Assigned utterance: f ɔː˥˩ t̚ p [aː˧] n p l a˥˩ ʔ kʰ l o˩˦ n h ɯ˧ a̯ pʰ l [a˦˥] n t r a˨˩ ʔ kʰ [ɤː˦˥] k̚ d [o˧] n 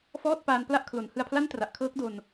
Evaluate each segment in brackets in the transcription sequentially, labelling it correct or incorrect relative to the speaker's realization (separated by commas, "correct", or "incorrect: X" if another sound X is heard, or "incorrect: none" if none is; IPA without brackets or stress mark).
correct, incorrect: a˥˩, correct, correct